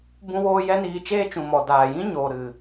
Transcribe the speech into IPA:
b ũ˦ w oː˦ j ɛ˦ n iː˧ t͡ʃ eː˦ t͡ʃ ũ˨ m ɔ˨ d aː˨ j ĩ˦ ɲ oː˨ ɾ ɨ˨

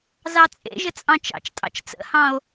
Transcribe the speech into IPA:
z ɑ t͡sʼ ḛ ʒ ə t͡sʼ ɑ̃ t͡ʃ ɑ̰ t͡ʃ tʼ ɑ̰ t͡ʃ t͡s ə̰ h ɑ̃ o̯

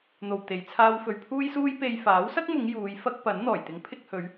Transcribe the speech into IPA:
n̪ o˧ w t̪ e˨˧ j t͡sʰ aː˥ w f ɵ˧ ɥ pʰ uː˥ j s uː˥ j p e˧ j f aː˨˥ w s ɐ˥ k̚ m ʊ˨˧ ŋ j uː˨˧ j f ɐ˥ k̚ p ɐ˨˥ n n̪ ɔː˨˩ j t̪ ɪ˨˥ ŋ pʰ ɪ˧ k̚ h ɵ˨˧ ɥ

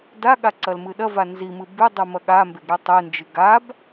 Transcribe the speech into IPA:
d a ɠ a ǀ ɐ l m ɨ ɗ ɐ v a n z i m ɨ b ʉ dˤ ɨ m ɐ ɠ a m b e ɡ ɾ e tˤ ɨ n d͡ʒ ɨ ɡ a b

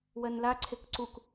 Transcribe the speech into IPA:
w ɜ n l a ǀʰ e k ǀ u k

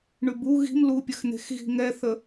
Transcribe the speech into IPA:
ɳ ʉ b u ɣ i̤ m l u pʲ ə x n̪ e̤ x ɣ i̤ ŋ ɛ θ ə

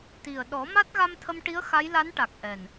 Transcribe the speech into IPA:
t̪ i˨˩ ə̯ ɗ ɔ˨˩˦ m a˦˥ t̚ ɣ a˧ m t̪ʰ ə˧ m ʈ i˧˥ ə̯ x a˧˥ j l a˧˥ n ʈ a˨˩ k̚ ʔ ɛ˨˩ n

